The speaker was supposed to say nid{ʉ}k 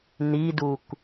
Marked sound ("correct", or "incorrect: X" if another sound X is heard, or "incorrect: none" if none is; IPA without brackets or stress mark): incorrect: u